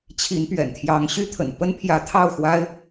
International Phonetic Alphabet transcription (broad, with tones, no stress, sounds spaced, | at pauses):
t͡ɕʰ i˧˥ n p ɥ ɛ̰˨˩ n t̪ʰ j ɑ˧˥ ŋ ɕ y˥˩ t̪ʰ ə̰˨˩ n p ə˥ n pʰ j ä˧˥ t̪ʰ ɑ˥˩ ʊ̯ x w a˥ ɪ̯